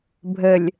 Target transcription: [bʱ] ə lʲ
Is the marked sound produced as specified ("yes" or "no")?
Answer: yes